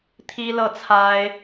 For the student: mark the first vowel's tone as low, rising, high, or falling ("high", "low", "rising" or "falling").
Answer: high